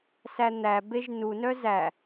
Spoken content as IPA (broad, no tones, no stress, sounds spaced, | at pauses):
s æ n̪ æ b e ʒ n u n œ z æ